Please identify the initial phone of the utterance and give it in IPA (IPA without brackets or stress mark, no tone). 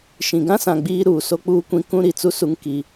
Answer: ʃ